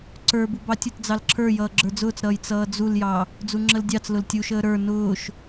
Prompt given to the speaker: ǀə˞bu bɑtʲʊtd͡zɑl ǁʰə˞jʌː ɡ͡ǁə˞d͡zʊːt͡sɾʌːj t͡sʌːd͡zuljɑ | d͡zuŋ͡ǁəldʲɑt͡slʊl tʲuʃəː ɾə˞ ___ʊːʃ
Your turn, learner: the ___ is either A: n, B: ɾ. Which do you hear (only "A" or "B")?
A